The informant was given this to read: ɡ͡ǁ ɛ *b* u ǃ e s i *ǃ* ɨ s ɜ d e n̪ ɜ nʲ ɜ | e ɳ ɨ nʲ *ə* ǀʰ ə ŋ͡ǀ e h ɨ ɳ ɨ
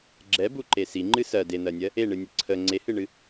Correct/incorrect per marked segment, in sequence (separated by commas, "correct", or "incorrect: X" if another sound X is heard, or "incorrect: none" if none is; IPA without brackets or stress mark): correct, incorrect: ŋ͡ǃ, correct